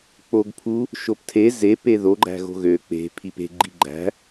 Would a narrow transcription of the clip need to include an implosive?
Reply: no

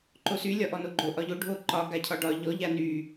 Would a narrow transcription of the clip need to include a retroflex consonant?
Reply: yes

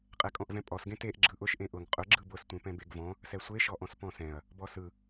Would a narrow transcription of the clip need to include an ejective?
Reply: yes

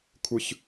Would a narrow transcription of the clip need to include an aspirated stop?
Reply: yes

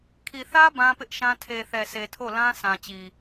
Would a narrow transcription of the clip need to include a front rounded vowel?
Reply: no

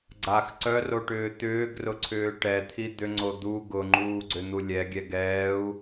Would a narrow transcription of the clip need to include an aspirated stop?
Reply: yes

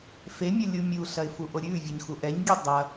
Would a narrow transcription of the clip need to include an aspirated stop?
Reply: no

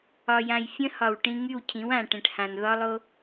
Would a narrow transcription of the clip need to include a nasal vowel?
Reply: yes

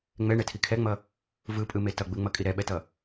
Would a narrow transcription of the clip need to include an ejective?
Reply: yes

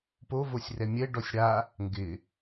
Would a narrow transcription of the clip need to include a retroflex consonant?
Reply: yes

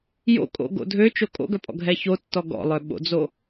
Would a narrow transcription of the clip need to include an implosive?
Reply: yes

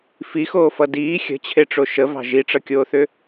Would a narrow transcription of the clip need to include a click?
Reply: no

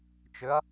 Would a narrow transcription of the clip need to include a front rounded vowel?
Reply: yes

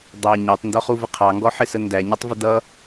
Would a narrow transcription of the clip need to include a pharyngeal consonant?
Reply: yes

